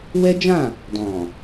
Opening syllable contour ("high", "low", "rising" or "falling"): high